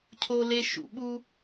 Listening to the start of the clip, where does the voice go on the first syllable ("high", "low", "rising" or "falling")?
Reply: high